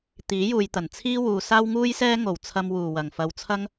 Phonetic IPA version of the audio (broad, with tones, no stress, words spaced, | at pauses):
t̪iː˨˥juː˨jt̪ɐ˨˩n t͡sʰiː˥wuː˨ saː˥wŋuː˥jsɛː˥ŋo˨˩w t͡sʰɐ˧mwuː˨˩ wɐ˨˩ŋfɐ˨wt͡sʰɐ˥ŋ